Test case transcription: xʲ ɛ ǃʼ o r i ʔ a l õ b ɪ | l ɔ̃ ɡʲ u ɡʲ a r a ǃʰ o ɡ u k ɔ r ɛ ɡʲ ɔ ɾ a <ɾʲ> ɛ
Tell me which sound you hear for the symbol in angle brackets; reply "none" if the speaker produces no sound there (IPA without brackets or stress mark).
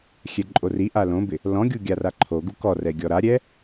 ɾʲ